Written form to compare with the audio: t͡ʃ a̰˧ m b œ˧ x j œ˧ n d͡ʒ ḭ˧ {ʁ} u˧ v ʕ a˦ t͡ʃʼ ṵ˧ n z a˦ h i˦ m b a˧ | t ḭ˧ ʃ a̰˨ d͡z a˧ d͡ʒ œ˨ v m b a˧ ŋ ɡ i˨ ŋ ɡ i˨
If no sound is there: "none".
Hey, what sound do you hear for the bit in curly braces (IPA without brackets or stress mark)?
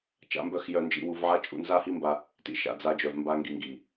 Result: w